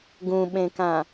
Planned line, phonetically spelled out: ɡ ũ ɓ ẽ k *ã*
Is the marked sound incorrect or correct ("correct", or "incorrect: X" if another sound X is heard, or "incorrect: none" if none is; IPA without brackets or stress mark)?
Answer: correct